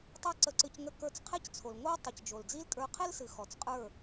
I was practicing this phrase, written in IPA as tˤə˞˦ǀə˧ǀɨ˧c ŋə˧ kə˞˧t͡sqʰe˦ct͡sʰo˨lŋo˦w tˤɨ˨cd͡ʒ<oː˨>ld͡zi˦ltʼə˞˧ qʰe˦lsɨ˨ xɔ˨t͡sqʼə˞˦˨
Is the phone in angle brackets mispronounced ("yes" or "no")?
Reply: yes